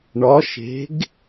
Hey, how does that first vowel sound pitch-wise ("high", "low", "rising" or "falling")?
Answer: rising